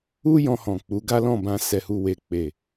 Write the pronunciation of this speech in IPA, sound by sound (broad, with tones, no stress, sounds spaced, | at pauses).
u˦ j ɔ̃˧ h ɔ̃˨ k͡p u˨˦ ɡ a˦ l ɔ̃˦˨ b ã˧ s ɛ˨ h u˨ w e˨ k͡p e˨